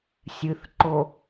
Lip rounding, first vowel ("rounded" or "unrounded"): unrounded